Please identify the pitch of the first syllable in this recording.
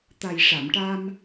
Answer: low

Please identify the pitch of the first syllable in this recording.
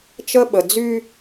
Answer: high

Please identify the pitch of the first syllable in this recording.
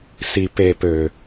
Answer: low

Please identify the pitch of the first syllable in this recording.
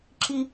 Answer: high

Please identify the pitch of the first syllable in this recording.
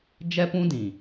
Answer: high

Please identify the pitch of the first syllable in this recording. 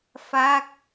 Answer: falling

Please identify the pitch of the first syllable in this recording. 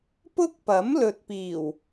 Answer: high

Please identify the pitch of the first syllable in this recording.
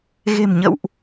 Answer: low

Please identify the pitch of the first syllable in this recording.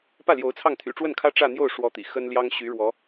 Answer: falling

